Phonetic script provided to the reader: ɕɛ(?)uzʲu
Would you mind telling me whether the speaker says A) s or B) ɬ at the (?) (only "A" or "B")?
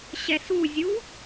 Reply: A